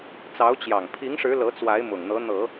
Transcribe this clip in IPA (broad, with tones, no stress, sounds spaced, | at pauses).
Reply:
t͡s ɑ˧˥ ʊ̯ t͡ɕ j ɑ˨˩ ŋ pʰ i˧˥ ŋ ʂ ɻ̩˧˥ l ɤ˧˥ t͡s w a˧˥ ɪ̯ m ʊ˨˩ ŋ n̪ ɤ˧˥ n̪ ɤ˨˩˦